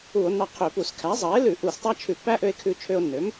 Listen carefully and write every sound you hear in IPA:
u˧˩˧ o̯ nː ɑ˧ qʰ ø˧˩˧ p u˧˩˧ s kʰ æ˩˥ zˤ ɑ˩˥ e̯ l ʉ˧˩˧ ʔ u˧˩˧ s tˤ æ˦˥ t͡ʃʰ ʉ˧˩˧ pː æ˦˥ ʔ ø˧ e̯ kʰ ʉ˧ t͡ʃʰ ø˧ o̯ nː ø˩˥ m

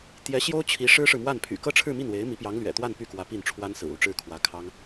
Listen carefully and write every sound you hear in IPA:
t̪ j ɛ˧˥ ɕ j o˥ ʊ̯ t͡ɕʰ i˧˥ ʂ ɻ̩˥ ʂ ɻ̩˨ m w a˥˩ n pʰ y̰˨˩ k ɤ˥ ʈ͡ʂʰ ɻ̩˥˧ m i˥˩ n w e˧˥ ɪ̯ m i˧˥ p j ɑ˧˥ ŋ l ɥ ɛ̰˨˩ t̪ w a˥˧ n p y˥˩ k w ä˧˥ p i˥˩ n ʈ͡ʂʰ w a˥ n s ɹ̩˨˩ u˥˧ ʈ͡ʂ ɻ̩˥˩ kʰ w ä˧˥ kʰ ɑ˥ ŋ

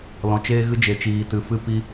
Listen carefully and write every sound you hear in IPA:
l ɔ̃˨ t͡ʃ eː˦ ɣ ɨ˧ d͡ʒ e˨ t͡ʃ iː˨ t ɨ˨ f ɨ˧ p i˧

